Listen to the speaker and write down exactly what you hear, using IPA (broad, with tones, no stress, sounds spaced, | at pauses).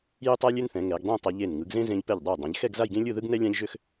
j ø˥ tˤ a˥ lʲ ø˥ n θ ɛ̃˩˧ ŋ ɛ˩˧ ɡ dˤ ẽ˥˧ tˤ e˧ ʎ e˧˩ n ŋ ɯ˩˧ ɡ z ẽ˥ z ẽ˧ ʎ p ɛ˧˩ ʎ dˤ ɯ˧˩ j dˤ ẽ˩˧ ʎ x ɛ˥˧ ɡ z a˥˧ j ɡ ẽ˥ lʲ ɯ˥˧ ð ɯ˥ ɡ n ɛ˥ lʲ ã˥ ʎ ʒ ø˥ x